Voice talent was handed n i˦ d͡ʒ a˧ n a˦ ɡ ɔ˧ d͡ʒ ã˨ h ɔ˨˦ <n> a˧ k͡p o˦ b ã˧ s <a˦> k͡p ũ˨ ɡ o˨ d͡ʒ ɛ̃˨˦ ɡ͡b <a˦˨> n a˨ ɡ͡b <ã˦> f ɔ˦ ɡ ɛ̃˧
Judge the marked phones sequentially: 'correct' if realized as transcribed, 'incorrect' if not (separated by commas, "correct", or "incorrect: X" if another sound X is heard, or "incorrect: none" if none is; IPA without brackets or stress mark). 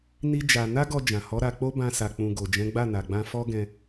incorrect: ɾ, incorrect: a˨, correct, incorrect: ã˧